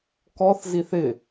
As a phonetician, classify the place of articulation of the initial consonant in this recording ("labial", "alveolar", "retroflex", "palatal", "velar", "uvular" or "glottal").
velar